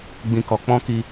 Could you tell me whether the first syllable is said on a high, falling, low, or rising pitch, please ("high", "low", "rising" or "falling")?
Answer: low